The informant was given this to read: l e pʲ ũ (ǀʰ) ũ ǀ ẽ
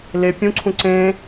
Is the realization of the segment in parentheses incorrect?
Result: no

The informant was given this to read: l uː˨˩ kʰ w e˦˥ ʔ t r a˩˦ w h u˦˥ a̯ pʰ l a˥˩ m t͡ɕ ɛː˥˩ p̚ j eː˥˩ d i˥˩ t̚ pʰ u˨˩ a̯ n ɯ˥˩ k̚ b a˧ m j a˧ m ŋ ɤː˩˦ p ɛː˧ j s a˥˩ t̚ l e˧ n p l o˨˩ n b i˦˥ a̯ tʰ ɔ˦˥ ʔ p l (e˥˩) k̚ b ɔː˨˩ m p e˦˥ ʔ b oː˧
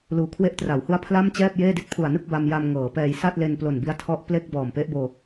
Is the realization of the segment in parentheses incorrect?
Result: no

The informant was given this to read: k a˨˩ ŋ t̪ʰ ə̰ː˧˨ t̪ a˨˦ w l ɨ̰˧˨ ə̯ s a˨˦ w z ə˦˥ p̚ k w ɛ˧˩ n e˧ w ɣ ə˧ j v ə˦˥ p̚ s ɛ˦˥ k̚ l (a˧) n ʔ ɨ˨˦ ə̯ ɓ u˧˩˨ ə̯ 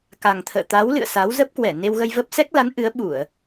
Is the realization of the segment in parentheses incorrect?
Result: yes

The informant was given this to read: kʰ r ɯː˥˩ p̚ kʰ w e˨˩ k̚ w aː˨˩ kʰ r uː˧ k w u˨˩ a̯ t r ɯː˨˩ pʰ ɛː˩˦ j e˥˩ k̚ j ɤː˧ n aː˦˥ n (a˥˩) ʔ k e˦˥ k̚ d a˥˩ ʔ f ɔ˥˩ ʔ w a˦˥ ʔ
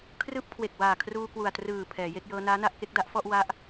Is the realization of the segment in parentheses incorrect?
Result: no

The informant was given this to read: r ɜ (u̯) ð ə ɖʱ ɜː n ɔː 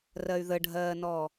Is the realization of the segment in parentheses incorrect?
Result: yes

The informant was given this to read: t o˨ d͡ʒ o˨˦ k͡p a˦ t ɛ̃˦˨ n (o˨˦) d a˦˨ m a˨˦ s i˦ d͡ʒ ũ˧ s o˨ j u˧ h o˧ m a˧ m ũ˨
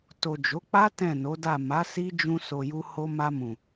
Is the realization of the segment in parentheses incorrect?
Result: no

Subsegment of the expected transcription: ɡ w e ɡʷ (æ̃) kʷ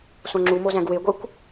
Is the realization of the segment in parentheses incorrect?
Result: yes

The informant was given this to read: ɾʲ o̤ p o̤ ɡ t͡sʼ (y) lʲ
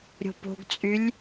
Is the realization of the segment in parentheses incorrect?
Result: no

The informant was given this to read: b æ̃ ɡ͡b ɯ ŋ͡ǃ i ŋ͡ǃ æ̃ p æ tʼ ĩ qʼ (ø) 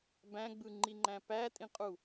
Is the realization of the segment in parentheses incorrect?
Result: yes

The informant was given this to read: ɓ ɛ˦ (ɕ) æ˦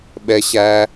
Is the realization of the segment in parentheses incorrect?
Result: no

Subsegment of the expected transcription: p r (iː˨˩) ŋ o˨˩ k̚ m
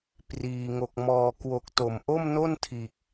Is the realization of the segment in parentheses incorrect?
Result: no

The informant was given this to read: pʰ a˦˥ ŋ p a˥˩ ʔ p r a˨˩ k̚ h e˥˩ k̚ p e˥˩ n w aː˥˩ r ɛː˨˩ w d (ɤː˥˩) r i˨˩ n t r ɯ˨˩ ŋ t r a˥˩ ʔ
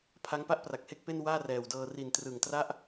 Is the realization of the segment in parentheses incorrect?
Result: yes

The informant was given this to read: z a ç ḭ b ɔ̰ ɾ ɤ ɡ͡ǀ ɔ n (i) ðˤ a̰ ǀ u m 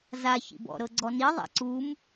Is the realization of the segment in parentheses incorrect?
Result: no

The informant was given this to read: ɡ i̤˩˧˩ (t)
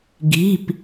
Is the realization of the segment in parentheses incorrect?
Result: yes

